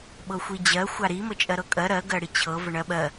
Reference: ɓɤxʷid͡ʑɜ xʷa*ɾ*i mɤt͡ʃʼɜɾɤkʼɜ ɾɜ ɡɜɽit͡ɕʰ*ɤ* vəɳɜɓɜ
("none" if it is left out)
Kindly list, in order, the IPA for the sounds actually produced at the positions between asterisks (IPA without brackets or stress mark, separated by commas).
ɾ, ɤ